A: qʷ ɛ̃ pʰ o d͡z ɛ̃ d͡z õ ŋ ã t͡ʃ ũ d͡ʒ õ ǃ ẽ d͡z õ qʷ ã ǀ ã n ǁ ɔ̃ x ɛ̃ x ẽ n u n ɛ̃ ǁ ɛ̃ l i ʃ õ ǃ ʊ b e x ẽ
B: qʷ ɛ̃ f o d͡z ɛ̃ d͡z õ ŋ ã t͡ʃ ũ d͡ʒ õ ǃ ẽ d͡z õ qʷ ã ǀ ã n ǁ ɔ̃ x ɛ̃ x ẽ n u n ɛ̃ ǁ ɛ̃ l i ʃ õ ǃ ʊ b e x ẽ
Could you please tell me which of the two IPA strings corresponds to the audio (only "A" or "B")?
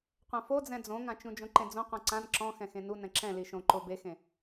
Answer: B